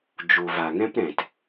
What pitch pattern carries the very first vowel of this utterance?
low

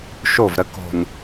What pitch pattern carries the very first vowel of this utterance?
falling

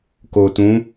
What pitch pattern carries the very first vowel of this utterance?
low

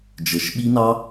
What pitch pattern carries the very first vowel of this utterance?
rising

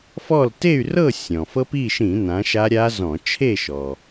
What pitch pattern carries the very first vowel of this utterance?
falling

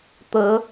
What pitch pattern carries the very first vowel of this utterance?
rising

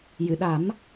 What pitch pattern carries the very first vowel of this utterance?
low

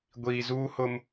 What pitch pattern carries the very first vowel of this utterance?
low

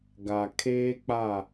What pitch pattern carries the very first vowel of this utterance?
low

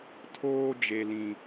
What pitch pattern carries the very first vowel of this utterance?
high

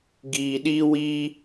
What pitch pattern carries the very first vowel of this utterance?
low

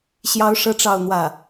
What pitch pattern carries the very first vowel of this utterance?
high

